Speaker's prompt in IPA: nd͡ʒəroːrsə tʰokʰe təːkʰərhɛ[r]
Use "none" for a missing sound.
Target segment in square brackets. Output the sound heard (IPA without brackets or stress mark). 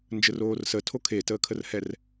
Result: r